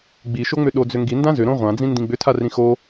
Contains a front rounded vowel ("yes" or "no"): yes